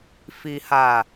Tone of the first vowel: low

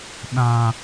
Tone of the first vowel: high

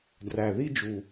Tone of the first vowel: low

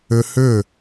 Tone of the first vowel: high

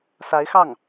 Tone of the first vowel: rising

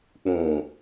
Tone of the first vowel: low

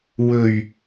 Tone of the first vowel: low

